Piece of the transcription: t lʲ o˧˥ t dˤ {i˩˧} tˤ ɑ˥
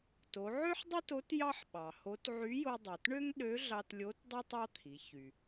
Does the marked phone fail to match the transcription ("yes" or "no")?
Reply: yes